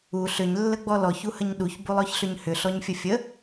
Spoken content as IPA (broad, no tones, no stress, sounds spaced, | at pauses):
u ɬ ʏ ɲ lː ə ɡ͡b ɔ l ɔ ç u h ə ɲ ɗ u ç b u lˠ ɔ ç ɬ ʏ ɲ h ʏ ɬ ɔ ɲ fʲ ə fʲ ə